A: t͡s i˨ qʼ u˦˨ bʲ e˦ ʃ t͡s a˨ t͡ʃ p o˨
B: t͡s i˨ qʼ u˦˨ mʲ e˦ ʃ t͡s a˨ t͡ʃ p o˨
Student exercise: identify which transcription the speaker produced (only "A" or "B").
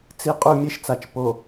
B